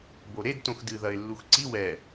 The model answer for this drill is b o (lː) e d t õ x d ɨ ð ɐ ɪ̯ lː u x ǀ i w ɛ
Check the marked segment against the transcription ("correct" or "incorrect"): incorrect